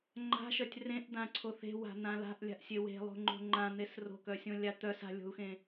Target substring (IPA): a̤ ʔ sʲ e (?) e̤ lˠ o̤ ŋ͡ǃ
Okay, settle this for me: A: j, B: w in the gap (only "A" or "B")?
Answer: B